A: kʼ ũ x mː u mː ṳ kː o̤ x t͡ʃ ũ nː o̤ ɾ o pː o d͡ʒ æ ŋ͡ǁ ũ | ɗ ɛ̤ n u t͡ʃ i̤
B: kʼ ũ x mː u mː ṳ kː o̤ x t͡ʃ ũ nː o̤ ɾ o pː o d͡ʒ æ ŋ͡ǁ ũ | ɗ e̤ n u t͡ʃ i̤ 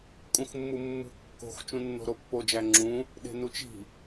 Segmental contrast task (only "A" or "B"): B